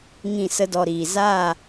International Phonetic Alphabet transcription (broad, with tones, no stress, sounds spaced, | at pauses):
ŋ ĩ˦˨ s ə˦ d ɔ˧ ɾ iː˨ z a˦˨